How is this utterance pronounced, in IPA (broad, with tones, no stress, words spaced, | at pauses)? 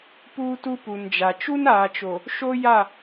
puː˦tu˦ pu˨nd͡ʒa˨ t͡ʃu˦naː˨t͡ʃo˨ | ʃo˦ja˦˨